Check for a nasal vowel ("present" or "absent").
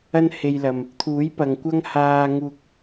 absent